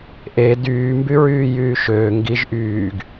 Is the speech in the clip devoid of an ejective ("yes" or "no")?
yes